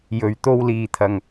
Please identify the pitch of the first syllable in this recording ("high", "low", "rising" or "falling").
low